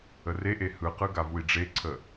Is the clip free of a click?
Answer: no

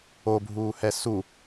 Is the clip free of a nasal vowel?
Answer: yes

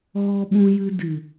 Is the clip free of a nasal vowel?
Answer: no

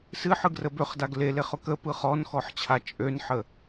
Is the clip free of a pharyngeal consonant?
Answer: no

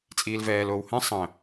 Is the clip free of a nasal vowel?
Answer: no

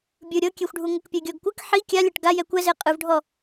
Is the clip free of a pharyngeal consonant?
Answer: no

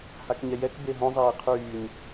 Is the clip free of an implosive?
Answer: yes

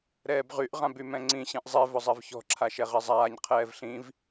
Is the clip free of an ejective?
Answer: yes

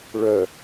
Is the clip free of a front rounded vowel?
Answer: no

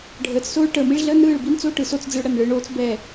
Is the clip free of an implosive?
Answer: yes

